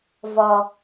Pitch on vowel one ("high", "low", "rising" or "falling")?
low